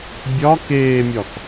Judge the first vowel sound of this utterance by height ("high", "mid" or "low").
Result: low